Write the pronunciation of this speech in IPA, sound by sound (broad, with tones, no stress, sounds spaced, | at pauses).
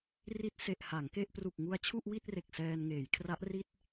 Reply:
r i˦˥ t̚ s e˨˩ ʔ h a˩˦ ŋ k e˥˩ ʔ p r u˨˩ k̚ ŋ u˧ a̯ t͡ɕʰ u˥˩ ʔ w i˥˩ t̚ r e˨˩ k̚ s ɛː˧ n ŋ eː˩˦ j kʰ r a˦˥ ʔ r i˥˩ t̚